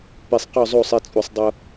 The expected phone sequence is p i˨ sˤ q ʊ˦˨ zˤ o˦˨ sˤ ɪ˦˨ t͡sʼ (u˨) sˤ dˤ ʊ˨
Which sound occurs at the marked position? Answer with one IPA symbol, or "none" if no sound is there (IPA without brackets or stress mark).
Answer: u˨